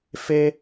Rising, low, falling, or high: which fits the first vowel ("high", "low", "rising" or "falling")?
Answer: high